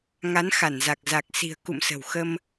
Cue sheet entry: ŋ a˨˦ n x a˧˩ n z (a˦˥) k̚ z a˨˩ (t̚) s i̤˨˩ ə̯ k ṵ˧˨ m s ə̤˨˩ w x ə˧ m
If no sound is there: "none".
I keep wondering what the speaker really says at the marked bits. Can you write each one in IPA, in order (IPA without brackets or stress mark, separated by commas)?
a˨˩, k̚